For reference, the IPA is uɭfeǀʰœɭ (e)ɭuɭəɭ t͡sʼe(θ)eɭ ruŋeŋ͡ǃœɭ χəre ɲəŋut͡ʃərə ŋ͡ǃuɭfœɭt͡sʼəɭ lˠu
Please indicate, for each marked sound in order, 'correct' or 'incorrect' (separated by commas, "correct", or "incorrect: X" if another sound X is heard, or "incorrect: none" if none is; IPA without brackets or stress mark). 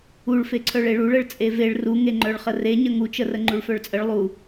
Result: correct, incorrect: v